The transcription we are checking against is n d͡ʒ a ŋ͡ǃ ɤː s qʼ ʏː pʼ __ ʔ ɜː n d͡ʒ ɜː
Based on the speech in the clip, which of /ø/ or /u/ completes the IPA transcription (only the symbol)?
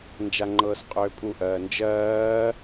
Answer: u